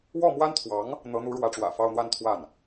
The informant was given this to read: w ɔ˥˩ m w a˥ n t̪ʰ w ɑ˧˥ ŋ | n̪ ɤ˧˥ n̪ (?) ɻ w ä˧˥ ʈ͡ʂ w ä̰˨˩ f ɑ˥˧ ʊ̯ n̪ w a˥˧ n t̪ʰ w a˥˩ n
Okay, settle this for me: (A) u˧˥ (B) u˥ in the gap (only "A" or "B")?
A